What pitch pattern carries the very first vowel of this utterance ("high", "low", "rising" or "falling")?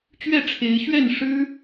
falling